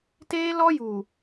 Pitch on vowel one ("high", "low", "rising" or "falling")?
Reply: high